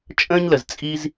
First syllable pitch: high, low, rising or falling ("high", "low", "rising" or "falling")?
high